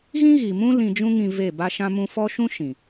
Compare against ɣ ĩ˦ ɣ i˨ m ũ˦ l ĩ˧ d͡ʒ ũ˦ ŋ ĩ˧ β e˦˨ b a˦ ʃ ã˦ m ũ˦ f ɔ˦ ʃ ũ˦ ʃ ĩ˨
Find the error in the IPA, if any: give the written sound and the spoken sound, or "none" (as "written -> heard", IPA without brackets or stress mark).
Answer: β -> v